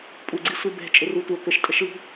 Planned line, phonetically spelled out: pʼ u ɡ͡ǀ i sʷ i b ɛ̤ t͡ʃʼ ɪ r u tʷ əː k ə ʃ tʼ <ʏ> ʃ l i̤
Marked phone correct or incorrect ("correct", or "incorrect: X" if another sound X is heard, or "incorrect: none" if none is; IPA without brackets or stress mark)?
incorrect: ə